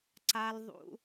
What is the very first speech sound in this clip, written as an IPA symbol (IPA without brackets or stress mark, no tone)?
ǀ